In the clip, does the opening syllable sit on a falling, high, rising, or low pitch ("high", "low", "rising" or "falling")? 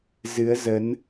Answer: rising